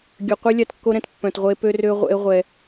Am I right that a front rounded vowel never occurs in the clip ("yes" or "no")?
no